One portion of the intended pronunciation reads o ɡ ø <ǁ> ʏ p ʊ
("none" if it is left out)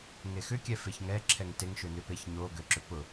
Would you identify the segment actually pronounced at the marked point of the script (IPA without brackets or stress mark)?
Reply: ǁ